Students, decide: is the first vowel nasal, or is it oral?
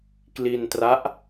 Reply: oral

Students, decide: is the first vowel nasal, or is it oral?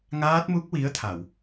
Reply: oral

